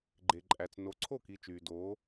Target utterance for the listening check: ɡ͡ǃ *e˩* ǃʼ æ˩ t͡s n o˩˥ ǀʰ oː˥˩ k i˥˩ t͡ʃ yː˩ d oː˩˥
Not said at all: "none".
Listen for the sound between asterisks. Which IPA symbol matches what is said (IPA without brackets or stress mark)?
e˩